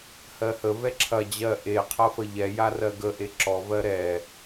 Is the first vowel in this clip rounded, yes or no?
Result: no